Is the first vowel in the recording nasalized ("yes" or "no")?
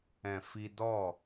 yes